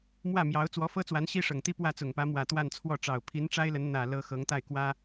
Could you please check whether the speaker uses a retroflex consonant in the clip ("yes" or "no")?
yes